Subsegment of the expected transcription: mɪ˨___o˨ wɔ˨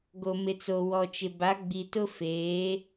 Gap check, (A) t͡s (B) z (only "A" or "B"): A